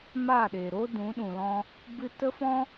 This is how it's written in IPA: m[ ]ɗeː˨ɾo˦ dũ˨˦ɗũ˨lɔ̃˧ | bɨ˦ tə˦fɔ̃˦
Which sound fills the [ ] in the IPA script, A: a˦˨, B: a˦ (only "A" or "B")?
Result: A